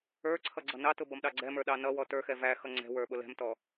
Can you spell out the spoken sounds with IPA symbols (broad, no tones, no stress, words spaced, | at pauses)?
ə˞ǀʰʌ ɡ͡ǀʌnɑtʊ bʌmɗɑɡ͡ǀɛmə˞ ɗɑnʌwɔ tə˞xɛ væxʌ ŋ͡ǀɛ̤ wə˞ɓʊlɛ̤mtɔ